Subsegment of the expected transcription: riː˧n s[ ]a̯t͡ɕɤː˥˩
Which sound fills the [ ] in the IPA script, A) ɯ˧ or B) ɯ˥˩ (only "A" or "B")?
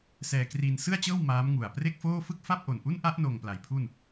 B